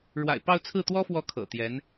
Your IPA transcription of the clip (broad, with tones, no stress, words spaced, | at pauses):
ɻwa̰˨˩ɪ̯pɑ˥˧ʊ̯ t͡sʰɹ̩˥˩t̪wɔ˥fwɔ˧˥ kʰɤ̰˨˩t̪jɛ˧˥n